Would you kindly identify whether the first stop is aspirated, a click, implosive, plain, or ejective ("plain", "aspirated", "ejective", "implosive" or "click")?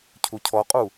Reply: aspirated